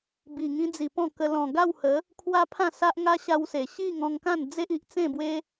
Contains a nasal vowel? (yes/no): yes